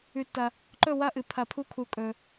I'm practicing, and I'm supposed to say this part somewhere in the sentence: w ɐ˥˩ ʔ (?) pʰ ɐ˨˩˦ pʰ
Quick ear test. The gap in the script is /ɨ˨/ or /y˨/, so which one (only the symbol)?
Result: ɨ˨